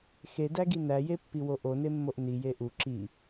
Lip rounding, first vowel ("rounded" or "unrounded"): unrounded